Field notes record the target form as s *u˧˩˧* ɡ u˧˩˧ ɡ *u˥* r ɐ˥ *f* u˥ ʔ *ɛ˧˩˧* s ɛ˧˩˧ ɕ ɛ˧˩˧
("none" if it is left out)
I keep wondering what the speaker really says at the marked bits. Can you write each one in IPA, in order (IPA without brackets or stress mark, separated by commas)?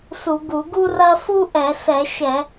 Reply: u˧˩˧, u˥, f, ɛ˧˩˧